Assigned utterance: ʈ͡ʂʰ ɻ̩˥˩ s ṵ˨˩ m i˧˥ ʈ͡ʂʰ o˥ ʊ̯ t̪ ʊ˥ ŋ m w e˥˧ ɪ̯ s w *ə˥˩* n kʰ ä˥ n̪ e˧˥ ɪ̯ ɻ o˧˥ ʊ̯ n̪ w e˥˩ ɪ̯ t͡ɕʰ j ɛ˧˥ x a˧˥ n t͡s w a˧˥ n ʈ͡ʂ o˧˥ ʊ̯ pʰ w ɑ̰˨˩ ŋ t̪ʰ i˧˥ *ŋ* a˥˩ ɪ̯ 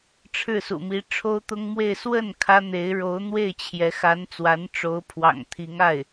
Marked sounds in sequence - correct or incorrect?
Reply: correct, correct

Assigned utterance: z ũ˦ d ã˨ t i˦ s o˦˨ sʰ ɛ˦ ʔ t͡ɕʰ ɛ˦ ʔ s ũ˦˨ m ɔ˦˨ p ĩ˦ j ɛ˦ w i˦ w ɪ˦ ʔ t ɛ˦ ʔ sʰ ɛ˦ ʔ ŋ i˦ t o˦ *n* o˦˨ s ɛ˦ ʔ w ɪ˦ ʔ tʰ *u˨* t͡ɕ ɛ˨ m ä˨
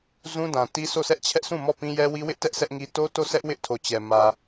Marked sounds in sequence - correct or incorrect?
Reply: incorrect, incorrect

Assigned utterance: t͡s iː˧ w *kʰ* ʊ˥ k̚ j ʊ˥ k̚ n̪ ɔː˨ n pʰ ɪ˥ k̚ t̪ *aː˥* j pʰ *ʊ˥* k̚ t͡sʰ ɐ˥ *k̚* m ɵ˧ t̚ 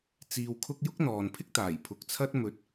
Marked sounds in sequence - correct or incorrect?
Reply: correct, incorrect, incorrect, incorrect

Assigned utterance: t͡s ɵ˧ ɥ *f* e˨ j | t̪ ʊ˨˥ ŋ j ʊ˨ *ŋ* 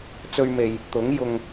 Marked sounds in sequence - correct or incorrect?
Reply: incorrect, correct

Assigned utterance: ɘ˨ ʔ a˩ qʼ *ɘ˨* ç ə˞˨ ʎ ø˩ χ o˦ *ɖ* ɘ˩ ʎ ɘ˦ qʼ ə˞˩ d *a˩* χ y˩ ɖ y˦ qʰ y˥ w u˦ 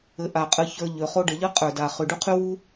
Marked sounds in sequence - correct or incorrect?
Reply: correct, correct, correct

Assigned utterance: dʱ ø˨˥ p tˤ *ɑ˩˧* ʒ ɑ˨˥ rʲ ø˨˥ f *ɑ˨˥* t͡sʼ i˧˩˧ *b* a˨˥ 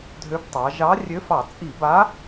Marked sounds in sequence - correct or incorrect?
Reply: correct, incorrect, correct

